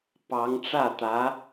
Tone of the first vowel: rising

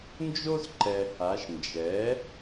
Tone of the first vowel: high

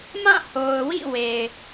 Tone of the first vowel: falling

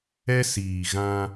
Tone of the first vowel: high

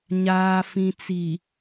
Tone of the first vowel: low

